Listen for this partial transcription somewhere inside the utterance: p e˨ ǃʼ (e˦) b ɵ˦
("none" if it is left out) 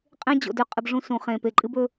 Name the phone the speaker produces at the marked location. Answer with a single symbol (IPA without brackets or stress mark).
ɨ˦